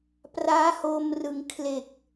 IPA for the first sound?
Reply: p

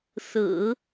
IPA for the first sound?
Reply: s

